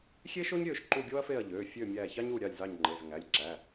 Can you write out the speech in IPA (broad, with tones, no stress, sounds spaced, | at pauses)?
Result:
xʲ e˥ ʃ o˥ ɲ ɾʲ ø˦˨ ʃ ǃ u˦˨ ɡʲ o˥ ɐ̯ f e˦˨ ɐ̯ ʎ ø˩˧˩ fʲ ø˦˨ mʲ æ˦˨ ç ɑ˥ ɲ u˦˨ ɾʲ ɑ˦˨ lʲ z ɑ˦˨ ɲ ŋ͡ǃ e˩˧˩ z ŋ æ˩˧˩ lʲ ǁ æ˩˧˩